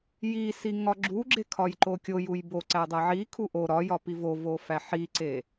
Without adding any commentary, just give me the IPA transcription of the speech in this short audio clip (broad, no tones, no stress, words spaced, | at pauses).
jisi ŋɒɡ͡ǁuɡ͡ǁe kʰɒjǃokʲojuj bo ǀædˤæʕikʰu ʔo ɾɒjɒ pivovo fæħiǀe